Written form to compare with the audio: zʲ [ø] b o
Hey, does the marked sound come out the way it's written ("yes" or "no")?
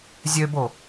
yes